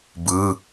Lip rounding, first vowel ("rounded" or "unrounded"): unrounded